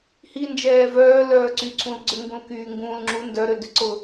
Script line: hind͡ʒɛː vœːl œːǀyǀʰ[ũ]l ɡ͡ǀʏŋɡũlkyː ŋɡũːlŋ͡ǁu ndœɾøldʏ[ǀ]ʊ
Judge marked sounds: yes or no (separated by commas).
yes, yes